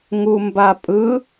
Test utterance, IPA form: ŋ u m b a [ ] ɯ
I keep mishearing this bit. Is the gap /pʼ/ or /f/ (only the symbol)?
pʼ